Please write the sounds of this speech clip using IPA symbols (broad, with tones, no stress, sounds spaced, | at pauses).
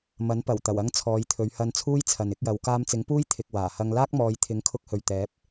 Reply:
m ɐ˨˥ n p ɐ˨˩ w t̪ ɐ˨˩ w ɐ˧ ŋ t͡sʰ ɔː˨˧ j t̪ʰ ɵ˨˧ ɥ h ɐ˧ n t͡sʰ uː˥ j t͡sʰ ɐ˨ n ɪ˨˥ k̚ j ɐ˨˧ w k aː˧ m t͡s ɪ˨˥ ŋ p uː˥ j t̪ʰ ɪ˨ k̚ w aː˨˩ h ɐ˧ ŋ l aː˥ k̚ m ɔː˨˧ j t̪ʰ ɪ˨˥ ŋ kʰ ʊ˧ k̚ h ɵ˨ ɥ t̪ ɛː˨˥ p̚